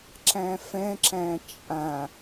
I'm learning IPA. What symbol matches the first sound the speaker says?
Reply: ǁ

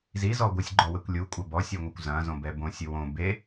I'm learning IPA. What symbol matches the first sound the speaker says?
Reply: z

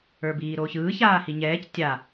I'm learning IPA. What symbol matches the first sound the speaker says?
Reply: ə˞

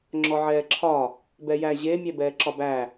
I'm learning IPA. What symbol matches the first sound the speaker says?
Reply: ŋ͡ǁ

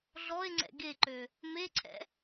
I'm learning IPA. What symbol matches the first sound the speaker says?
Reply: ɮ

